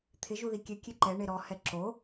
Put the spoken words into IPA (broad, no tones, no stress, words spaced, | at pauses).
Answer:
t̪ʰɪ ʒuðikʲɛ kʲeǃɛ ɳeɾɔ hɛǁo